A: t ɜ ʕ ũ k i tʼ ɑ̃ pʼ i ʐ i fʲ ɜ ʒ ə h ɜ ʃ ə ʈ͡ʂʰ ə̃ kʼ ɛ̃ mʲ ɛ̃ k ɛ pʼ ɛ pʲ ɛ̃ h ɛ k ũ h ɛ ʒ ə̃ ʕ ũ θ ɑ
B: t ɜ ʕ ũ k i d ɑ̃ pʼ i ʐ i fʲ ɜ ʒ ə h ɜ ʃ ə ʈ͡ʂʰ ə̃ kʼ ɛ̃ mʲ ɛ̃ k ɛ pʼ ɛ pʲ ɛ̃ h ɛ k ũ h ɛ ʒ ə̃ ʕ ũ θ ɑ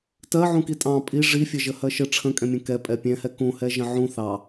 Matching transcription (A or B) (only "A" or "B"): A